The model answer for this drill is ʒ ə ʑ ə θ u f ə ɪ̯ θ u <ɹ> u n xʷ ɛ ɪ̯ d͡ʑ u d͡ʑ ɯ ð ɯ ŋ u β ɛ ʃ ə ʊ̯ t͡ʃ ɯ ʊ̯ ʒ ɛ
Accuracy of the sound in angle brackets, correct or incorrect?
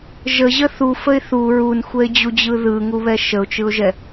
correct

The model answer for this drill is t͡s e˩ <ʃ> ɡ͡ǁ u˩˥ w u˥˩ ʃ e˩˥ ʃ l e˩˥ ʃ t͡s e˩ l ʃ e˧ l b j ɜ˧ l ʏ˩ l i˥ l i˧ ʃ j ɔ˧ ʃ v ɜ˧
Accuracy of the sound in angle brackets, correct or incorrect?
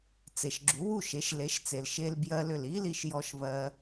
correct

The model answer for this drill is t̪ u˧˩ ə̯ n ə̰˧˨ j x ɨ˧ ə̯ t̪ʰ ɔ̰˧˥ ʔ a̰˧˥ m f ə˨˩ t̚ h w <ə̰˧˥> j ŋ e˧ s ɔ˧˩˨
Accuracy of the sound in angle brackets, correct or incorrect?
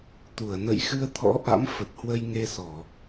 incorrect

